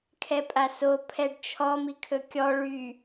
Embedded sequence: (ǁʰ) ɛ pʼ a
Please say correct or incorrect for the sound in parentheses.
incorrect